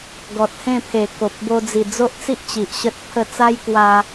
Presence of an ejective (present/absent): absent